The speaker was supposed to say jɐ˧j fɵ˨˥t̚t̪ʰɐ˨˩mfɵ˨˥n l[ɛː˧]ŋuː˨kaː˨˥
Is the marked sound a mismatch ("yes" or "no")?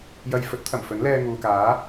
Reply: no